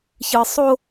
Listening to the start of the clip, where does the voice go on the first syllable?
low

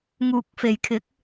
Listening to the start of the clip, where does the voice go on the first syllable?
low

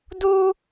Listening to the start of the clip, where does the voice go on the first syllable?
high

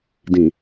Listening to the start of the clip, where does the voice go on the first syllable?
low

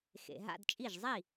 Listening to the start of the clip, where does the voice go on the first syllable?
low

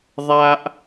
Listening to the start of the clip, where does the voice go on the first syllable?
high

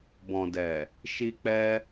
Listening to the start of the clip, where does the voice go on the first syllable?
low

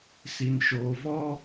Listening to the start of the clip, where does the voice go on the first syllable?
low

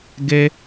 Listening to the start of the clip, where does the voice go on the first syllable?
high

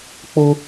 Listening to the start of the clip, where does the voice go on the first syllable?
high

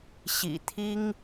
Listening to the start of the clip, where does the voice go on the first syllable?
low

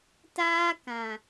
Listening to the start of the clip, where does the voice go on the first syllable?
high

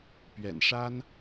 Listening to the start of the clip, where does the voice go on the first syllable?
low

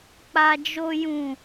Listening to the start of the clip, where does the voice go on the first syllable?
low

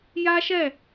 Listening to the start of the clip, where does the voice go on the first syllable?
high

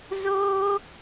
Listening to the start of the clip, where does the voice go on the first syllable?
high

